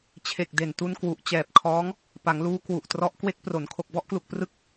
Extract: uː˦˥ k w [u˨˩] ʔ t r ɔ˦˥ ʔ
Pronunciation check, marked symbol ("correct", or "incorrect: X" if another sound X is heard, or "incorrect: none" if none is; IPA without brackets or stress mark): correct